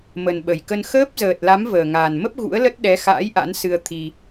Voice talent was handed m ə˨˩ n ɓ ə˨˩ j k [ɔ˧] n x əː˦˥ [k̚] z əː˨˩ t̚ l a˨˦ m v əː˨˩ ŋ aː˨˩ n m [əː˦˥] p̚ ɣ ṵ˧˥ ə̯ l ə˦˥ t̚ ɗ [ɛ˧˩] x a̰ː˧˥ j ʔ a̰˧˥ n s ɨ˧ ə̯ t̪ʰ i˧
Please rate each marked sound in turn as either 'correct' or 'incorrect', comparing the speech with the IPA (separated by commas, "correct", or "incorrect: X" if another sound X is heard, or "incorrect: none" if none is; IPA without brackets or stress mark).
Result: incorrect: ə˧, incorrect: p̚, incorrect: ə˦˥, incorrect: ɛ˨˦